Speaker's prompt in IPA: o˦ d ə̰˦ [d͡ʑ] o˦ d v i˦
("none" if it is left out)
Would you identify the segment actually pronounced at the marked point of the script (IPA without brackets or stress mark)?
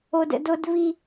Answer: d